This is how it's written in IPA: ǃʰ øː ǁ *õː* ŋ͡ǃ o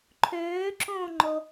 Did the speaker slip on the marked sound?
no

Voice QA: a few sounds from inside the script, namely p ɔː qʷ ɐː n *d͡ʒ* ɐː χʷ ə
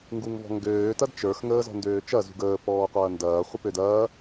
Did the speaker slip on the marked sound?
yes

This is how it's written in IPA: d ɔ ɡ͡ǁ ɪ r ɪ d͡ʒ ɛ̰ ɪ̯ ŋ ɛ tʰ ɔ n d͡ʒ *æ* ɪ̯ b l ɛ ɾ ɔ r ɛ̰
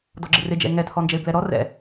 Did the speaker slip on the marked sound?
yes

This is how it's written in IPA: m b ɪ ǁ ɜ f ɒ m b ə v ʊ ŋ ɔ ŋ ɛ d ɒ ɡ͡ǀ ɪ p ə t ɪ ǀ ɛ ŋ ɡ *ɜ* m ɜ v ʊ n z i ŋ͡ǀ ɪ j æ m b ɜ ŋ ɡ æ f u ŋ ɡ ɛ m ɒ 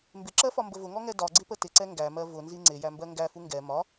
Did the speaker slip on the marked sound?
yes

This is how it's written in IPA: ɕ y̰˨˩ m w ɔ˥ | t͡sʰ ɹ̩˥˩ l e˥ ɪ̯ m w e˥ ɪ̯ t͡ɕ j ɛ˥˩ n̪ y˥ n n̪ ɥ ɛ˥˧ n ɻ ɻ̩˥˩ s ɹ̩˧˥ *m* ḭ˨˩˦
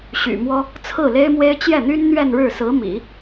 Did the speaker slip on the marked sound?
no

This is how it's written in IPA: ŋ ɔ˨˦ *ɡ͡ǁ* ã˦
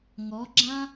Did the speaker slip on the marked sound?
no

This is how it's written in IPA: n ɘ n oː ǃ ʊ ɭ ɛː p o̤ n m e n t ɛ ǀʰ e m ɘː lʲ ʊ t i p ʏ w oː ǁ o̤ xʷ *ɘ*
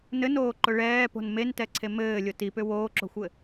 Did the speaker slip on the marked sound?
no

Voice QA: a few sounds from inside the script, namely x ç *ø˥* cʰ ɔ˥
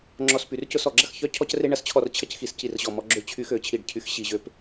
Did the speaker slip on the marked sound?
yes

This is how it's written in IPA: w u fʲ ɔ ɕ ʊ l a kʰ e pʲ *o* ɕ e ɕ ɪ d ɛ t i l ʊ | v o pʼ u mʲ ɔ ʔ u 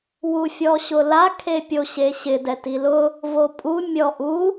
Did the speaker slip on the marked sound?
no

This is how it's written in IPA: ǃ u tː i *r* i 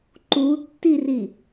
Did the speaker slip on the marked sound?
no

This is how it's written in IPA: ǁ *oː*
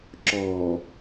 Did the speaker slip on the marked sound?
yes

